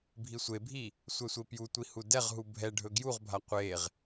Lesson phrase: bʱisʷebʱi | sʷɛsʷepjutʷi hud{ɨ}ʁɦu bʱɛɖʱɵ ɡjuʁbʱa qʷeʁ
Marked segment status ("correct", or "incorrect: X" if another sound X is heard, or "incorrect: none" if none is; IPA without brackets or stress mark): incorrect: ɛ